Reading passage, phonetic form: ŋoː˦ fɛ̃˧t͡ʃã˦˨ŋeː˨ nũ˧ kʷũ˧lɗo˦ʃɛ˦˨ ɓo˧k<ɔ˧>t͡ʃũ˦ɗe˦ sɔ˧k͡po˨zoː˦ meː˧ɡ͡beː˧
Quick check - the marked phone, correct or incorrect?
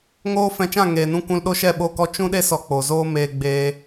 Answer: correct